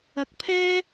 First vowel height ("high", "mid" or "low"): low